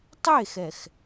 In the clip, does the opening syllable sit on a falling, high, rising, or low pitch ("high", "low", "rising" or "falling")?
falling